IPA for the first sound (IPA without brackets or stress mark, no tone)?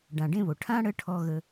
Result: ɖ